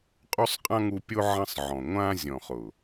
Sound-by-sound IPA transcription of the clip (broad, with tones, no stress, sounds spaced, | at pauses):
qʼ u˦ sˤ qʼ ã˦ ŋ u˧ pʲ o˦ ʕ ɐ̃˧ sˤ ʕ ɔ̃˨ ŋʷ ã˧ zʲ ɔ̃˨ χ ʊ˨